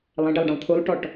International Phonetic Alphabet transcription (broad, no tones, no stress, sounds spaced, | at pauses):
lˠ ɛ̃ ɖ e lˠ ɖ ɐ̃ lˠ t̪ʰ u lˠ ʈ ɔ ʈ